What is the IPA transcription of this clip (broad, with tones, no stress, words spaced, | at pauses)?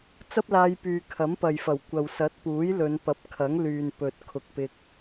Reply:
t͡sɐ˥p̚laː˧jpyː˨ kʰɐ˨˥mpɐ˨jfɐ˨˩w kʷɐ˨wsɐ˨˥t̚puː˨˥j lɵ˨˧n pɐ˨˥p̚kʰɐ˨˥ŋlyː˨npɵ˨t̚ kʰʊ˨k̚ pɪ˧k̚